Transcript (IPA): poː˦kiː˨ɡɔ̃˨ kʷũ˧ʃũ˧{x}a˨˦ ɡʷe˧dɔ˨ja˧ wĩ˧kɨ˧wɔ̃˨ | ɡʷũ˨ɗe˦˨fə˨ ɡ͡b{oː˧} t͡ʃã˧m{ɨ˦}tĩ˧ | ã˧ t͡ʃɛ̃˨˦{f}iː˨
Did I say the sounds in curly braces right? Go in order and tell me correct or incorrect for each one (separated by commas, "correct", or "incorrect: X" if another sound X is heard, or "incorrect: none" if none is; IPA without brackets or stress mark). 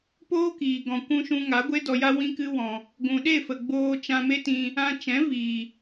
incorrect: ŋ, correct, incorrect: e˦, incorrect: v